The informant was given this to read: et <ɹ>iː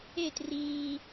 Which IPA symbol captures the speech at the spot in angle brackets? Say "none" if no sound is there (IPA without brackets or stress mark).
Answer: r